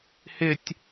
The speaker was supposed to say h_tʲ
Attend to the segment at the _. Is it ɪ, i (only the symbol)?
ɪ